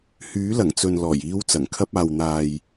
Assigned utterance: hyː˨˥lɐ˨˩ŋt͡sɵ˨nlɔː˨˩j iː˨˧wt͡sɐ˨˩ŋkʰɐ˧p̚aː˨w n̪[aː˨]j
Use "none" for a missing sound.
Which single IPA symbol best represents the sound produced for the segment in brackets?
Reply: aː˨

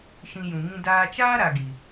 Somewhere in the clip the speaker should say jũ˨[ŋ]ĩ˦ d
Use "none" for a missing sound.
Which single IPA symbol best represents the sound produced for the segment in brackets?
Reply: ŋ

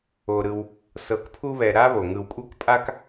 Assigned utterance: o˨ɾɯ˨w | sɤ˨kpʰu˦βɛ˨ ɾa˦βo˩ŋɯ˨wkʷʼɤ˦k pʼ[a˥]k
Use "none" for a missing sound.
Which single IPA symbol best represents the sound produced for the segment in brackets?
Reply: a˥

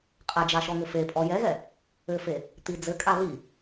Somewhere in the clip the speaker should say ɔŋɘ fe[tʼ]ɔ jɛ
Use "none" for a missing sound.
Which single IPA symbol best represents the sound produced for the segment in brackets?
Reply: pʼ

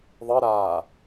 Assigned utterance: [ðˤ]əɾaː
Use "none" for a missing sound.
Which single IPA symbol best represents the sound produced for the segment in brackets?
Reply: ðˤ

